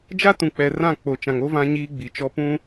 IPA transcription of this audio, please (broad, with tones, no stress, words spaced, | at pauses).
d͡ʒa˦ tũ˨k͡pɛ˨rã˦˨ k͡po˨t͡ʃã˨ŋo˦ vã˦ɲiː˦ɡ͡bi˨t͡ʃɔ˦ pũ˦